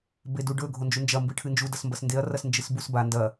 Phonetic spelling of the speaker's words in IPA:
b e d u ɖ ɵ ɡʱ o n d͡ʒ u n d͡ʒ ɐ m b ɨ ʈʰ ɨ n d͡ʒ u d ɐ s m b ɐ s n d e ɐ̯ r ɐ s n d͡ʒ ɨ s b u s b a n d ɐ

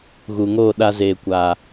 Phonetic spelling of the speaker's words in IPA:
ɣ u˨ ŋ oː˦˨ ɗ a˧ z eː˨ kʷ aː˨

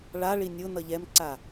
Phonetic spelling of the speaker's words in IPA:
ɭ a ɭ i nʲ ʊ n ʌ ʎ ɛ m ǀ a

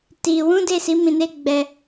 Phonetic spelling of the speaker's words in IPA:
t i˧ w ũ˦ d e˦˨ s i˨˦ m ĩ˧ n e˦ ɡ͡b ɛ˧

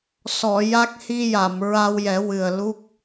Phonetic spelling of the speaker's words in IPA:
s ɔ˨˩˨ j a˦˥ k̚ h i˧ j a˨˩˨ m ɹ a˧ w j ɛ˨˩˦ w ɨ˨˩ ə̯ l u˦˥ k̚

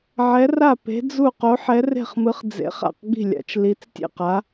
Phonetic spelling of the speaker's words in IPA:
ʕ ɛ˨˥ r a˥˩ p e̤˨˥ d͡z u˥˩ q o˨˥ ħ ɛ˨˥ r e̤˥˩ χ m ɯ˨˥ χ d͡z ḛ˨˥ χ a̰˥˩ q ɡ͡b i̤˥˩ lʲ a̰˨˥ t͡ʃ l i˨˥ t͡s tʲ ḛ˥˩ q a˨˥

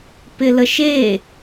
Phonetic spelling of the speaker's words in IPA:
p ɪ l ə ʃ e

